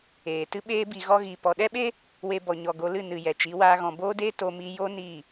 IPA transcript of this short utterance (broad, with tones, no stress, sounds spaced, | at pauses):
eː˨ t ɨ˧ ɓ eː˧ b i˨ ɣ ɔ˧ ɣ i˨ p ɔ˨ ɗ ɛ˦ ɓ e˦ | w e˧ b ɔ˨ ɲ ɔ˨ ɡ o˧ l ɨ˦˨ n ɨ˨ j ɛ˨ t͡ʃ i˨˦ w aː˧ ɣ ɔ̃˨ b oː˦ d eː˦ t o˧ m i˧ j o˦ n iː˦˨